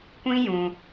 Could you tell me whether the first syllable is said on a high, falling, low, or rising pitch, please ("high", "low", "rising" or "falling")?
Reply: high